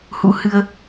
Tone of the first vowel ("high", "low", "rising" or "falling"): rising